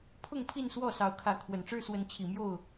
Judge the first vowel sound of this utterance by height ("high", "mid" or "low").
high